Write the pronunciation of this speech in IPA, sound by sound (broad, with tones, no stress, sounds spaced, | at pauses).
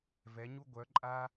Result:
v ɛ˨˦ ɲ u˥ ɡʷ œ˨˦ ǃʼ a˥